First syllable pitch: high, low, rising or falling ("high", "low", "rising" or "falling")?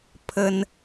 high